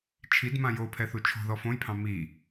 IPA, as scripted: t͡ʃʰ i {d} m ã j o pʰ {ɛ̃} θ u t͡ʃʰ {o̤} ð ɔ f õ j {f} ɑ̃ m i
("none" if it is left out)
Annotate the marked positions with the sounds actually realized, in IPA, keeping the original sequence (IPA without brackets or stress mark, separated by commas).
d, ɛ, o̤, pʰ